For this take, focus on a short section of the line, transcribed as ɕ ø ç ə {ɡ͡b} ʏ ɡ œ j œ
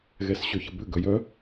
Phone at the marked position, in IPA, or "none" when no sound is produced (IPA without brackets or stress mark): b